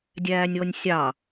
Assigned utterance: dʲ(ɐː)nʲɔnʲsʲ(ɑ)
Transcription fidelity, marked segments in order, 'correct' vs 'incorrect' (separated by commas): incorrect, correct